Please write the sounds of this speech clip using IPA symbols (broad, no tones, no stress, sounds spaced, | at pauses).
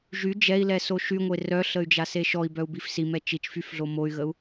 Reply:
ʒ y d͡ʒ ɛ i̯ l ɛ s o ʃ y ŋʷ e r œ ɬ ə y̯ d͡ʒ a s e ʃ ɔ i̯ b œ u̯ b i f s i m ɛ t͡ʃ i t͡ʃ f y f ɮ o m o y̯ ɣ ə u̯